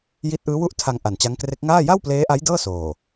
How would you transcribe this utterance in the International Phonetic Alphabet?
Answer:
j i˦˥ t̚ ʔ ɯː˦˥ w u˥˩ ʔ tʰ a˧ ŋ ʔ a˨˩ n t͡ɕ a˦˥ ŋ k r e˦˥ k̚ ŋ aː˥˩ j a˥˩ w p l eː˦˥ ʔ a˦˥ j d ɤː˥˩ s oː˨˩

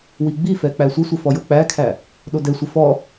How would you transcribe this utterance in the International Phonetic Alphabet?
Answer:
w i ɡ͡b i f ɛ k͡p æ sʷ ə sʷ ə f ɔ j o k͡p æ kʰ æ | ɗ o d ɛ sʷ ə f ɔ

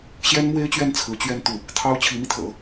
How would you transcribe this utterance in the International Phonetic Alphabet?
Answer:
ɕ j ɛ˥ n m w e˥ ɪ̯ t͡ɕ ɥ ɛ˥˩ n t͡sʰ ɹ̩˧˥ t͡ɕ ɥ ɛ˥˧ n t̪ u˥˩ | t̪ʰ ɑ˥ ʊ̯ t͡ɕʰ i˧˥ m i˧ t̪ʰ ɤ̰˨˩˦

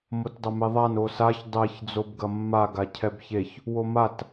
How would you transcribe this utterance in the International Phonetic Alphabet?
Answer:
m o t dˤ ɐ m e ðˤ a n o s a ç dˤ ɛ ç d͡z o b ɡ ɐ mː a ɡ a cʰ ɛ b ç e ç | w o m a t

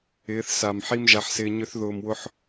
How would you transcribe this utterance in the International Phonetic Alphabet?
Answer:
ɪː˨˦ θ s a˨ m ħ i˦ m ʒ a˧ ħ s ɪː˧ ɲ ʏ˦ θ ð ʊː˧ m w ʊ˦ ħ

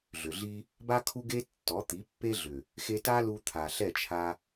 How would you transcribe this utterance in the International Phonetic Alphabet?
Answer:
ɮ ʏ˨ ɮ i˦ | b a˦ kʰ u˦ ɡ e˦ tː ɔ˨˦ t̪ i˨˦ pː e˦ ɮ ʏ˨ | x e˧ t a˦ l u˧ t̪ʰ a˨ ɬ ɛ˦˨ t͡ʃʰ a˧

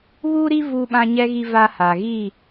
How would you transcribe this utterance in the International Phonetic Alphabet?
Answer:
β uː˦ ɾ i˦ v uː˦ ɓ ã˦ ɲ ɛ˦ ɣ i˦ v a˦ h a˨ ɣ i˦˨

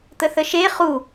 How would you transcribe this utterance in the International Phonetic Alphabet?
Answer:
t̪ ə θ ə ʃ e χ u

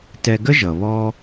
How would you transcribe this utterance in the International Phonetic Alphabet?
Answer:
t ɛ˧ ɡ ə˥ ʒ ʌ˩ β ɔ˥

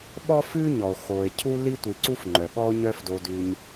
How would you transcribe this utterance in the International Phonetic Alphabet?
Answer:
ɓ ɔ˥ f ʉ˥ ɲ ɔ˩ o̯ x o˩ e̯ cʰ u˥ l i˥ tʷ i˨ ǀ u˥ f ŋ͡ǃ œ˩ ɠ ɔ˥ o̯ ɲ œ˦ f d o˨ d ʉ˨ ɲ

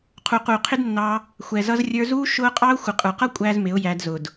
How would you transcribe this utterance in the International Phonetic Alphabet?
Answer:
qʰ u˨ q uː˨ qʰ ɪ˦ d nː ɑ˧ | xʷ ɛ˨ z ʌ˧ z rʲ ə˞˧ z uː˦ ʃ ʊː˦ qʼ ɑ˦ ʊ̯ xʷ ɪ˨ qʼ ə˞˨ q ʌ˦ kʷʼ æː˦ z m ɪ˨˦ ʊ̯ j æ˧ d z ʊ˨ d

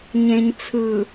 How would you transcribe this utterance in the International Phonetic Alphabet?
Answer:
ɲ ẽ˨ ɲ t͡sʰ ɯ˨

